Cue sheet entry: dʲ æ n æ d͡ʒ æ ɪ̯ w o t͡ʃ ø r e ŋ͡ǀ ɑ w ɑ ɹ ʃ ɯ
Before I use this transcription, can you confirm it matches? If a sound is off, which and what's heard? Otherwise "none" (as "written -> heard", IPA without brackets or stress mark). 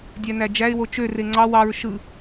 none